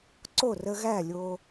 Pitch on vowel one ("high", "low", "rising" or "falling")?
falling